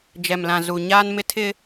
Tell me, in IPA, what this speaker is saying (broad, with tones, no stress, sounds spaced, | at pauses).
d͡ʒ ɛ˨ m l ã˨ z u˨ ɲ aː˦ n m ɪ˦ tʰ ɪ˦